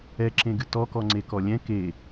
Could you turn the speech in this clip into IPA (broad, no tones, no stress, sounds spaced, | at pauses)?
ɛ ǁ ẽ ɡ ɨ t ɔ k ɔ ŋ͡ǀ e k ɔ lʲ ɛ̃ k e